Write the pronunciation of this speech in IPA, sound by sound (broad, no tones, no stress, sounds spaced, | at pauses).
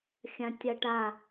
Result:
xʲ ã tʲ a ʈ a